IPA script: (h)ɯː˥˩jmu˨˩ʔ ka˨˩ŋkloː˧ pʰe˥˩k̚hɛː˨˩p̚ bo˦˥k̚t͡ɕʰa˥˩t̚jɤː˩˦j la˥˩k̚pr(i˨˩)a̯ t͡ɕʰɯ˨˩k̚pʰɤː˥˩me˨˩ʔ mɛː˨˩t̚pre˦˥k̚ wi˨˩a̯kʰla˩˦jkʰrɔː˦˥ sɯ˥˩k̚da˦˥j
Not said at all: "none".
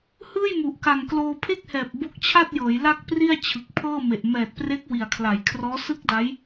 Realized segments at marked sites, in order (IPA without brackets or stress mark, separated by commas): h, i˥˩